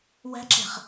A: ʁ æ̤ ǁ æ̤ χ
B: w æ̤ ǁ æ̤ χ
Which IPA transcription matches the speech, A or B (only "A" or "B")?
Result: B